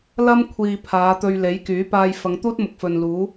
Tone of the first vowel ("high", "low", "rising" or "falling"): high